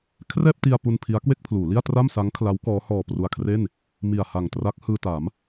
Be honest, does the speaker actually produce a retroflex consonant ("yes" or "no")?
no